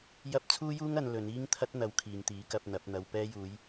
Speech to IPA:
j ɐ˥ p̚ t͡sʰ uː˥ j uː˥ ŋ ɐ˧ n l ɵ˨˧ n iː˥ ŋ t̪ʰ ɐ˥ t̚ n̪ ɐ˧ w kʰ iː˨ ŋ t̪ iː˨˥ k ɐ˧ p̚ n̪ ɐ˨˥ p̚ n̪ ɐ˧ w p ɛː˧ j uː˨˧ j

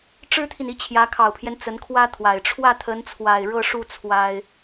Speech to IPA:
ʈ͡ʂ ɻ̩˥ t̪ʰ i˨ n i˥˩ t͡ɕʰ j ä˧˥ kʰ ɑ˨˩ ʊ̯ pʰ j ɛ˦ n t͡s ə˧˥ n kʰ w ä˥ t̪ʰ w a˨˩ ɪ̯ ʈ͡ʂʰ w ä˥˩ t̪ʰ ə˧˥ n t͡sʰ w a˨˩ ɪ̯ ɻ ɤ˥˧ ʂ u˥˩ t͡sʰ w a˥ ɪ̯

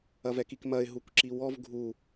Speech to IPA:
ɐ v ɛ k i k m ɐ ɪ̯ ɦ u kʷ ǁ i w ɔ v ɡʱ u

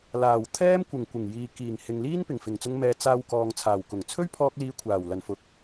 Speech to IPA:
l aː˨˩ w t̪ʰ ɛː˥ m kʷ ɪ˨˩ ŋ kʷ ɪ˨˩ ŋ j iː˨ k iː˨˩ ŋ h ɪ˨ ŋ l iː˥ n p ɪ˨˩ ŋ f ɪ˨˩ ŋ t͡s ʊ˧ ŋ m ɛː˨˧ t͡s aː˧ w k ɔː˨ ŋ t͡sʰ aː˨˩ w k ʊ˨˩ ŋ t͡sʰ ɵ˥ ɥ pʰ ɔː˧ k̚ l iː˨˧ kʷʰ aː˨˩ w l ɐ˨˩ n f ʊ˨˥ k̚

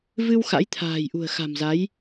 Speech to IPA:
v ɨ˧ w x a̰˧˥ j t̪ʰ a̤ː˨˩ j ʔ ṳ˨˩ ə̯ x a̤˨˩ m z a˨˦ j

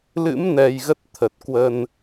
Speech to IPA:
l ɨ̰˧˥ m n ɛ˨˩ j ɣ ə˦˥ t̚ t̪ʰ ə˨˩ t̚ k w ə˧ n

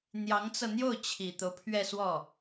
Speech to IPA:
n̪ j ɑ˧˥ ŋ t͡s ɤ˧ n̪ j o˥˩ ʊ̯ t͡ɕʰ i˨˩ t̪ o˦ ʊ̯ pʰ ɥ ɛ˥˧ s w ɔ˥˩

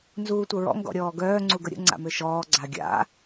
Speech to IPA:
n z uː tʷ ə ɹ ɔ̰ ŋ ɡ ɔ̰ ɾʲ ɔː ɡ œː ŋ͡ǀ u ɡ ə ɾʲ ə̰ ŋ͡ǀ a̰ m ø ʃ ɔː ɡ͡ǀ a ɡʲ a̰

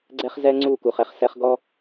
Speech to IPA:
ɡ͡ǀ ɛ˦ χ z ɛ˦ ŋ͡ǀ u˦˨ k u˨ χ ɛ˦ χ s ɛ˦ χ ɡ ɔ˦

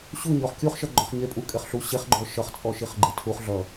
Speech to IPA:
ɕ u ɲ ɔ χ kʲ u χ ʃ ʌ ɡ͡ǃ ɔ χ ɲ e pʼ u kʼ e χ ɬ u ɕ e χ ɡ͡ǃ ɔ ʃ ʌ χ t͡sʼ ɔ ʃ i χ ɡ͡ǃ e tʰ u χ ɮ ʌ

